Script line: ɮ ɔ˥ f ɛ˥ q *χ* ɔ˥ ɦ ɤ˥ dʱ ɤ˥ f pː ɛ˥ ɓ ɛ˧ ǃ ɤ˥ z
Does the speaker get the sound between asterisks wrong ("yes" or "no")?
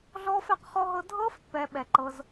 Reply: no